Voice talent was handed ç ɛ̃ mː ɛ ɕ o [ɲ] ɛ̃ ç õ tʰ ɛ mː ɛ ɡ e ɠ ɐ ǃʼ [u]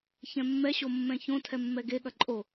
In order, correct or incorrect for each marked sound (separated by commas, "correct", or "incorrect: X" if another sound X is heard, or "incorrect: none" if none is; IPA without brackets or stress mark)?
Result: incorrect: mː, incorrect: o